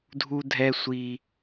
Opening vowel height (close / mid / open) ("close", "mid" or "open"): close